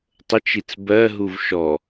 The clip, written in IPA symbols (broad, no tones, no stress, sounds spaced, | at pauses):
tˤ ə t͡ʃ i t͡s b ɜ ɦ u v ʃ ɔ